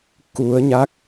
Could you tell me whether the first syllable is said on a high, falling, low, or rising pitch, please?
rising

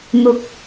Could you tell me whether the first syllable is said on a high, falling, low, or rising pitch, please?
low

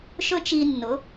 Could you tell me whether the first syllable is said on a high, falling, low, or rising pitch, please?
high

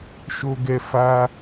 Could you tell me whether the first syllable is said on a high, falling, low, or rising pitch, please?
high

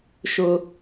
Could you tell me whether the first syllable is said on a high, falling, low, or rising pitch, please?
low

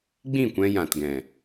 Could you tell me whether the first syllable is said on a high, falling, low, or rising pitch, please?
falling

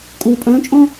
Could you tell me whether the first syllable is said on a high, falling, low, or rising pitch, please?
low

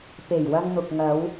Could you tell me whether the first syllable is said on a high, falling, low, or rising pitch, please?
low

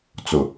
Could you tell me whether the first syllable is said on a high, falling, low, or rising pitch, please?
low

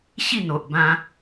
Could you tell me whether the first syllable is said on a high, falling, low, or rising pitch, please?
falling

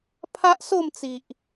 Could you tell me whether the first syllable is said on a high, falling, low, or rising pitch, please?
high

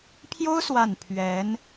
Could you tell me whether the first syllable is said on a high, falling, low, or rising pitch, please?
high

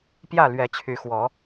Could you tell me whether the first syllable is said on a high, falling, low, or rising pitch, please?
falling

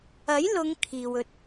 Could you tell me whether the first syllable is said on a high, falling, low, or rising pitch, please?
rising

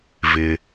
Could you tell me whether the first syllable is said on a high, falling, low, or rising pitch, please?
low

